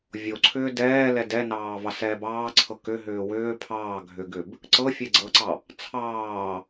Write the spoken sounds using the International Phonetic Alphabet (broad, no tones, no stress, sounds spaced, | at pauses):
vʲ o ǀʰ ʏː d ɛː l ɛ d ɛ n ɑː v ɑ s ɛː b ɑː ǀʰ ɤ k ʏ ɦ ʏː w ʏː pʰ ɑː ɡʱ ʏ ɡ ʏ b | ǀ ɤ fʲ ɛ ɡ͡ǀ ɤ ǀ ɑ | t͡sʰ ɑː